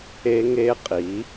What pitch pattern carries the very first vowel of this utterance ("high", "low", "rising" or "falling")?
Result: high